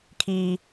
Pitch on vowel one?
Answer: high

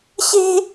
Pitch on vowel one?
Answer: high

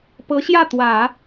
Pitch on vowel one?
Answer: rising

